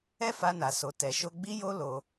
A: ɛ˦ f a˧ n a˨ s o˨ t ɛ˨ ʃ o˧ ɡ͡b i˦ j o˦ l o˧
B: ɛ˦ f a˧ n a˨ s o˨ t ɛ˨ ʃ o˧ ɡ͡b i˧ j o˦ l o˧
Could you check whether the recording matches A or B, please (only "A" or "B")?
A